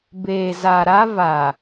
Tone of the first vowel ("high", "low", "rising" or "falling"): low